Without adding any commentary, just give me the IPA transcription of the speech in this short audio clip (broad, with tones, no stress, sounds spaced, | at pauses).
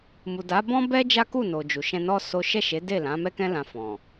m u˨ d a˨˦ b ɔ̃˦ b ɛ˦ d͡ʒ a˦ k u˦˨ n o˨ d͡ʒ u˨ ʃ ɛ̃˧ n ɔ˦ s o˦ ʃ ɛ˦˨ ʃ e˨˦ d e˦˨ l ã˨˦ m ɛ˦ k ɛ̃˦ l ã˧ f ɔ̃˨